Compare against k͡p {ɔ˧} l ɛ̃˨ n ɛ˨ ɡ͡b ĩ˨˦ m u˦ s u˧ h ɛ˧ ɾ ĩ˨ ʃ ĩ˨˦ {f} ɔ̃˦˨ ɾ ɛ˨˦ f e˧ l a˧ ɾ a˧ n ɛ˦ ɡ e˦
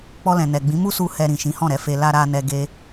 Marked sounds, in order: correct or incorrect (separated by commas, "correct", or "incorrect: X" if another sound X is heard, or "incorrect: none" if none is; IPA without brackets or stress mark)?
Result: correct, incorrect: h